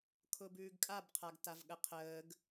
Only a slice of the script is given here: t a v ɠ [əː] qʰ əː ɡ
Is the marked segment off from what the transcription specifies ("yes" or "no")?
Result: yes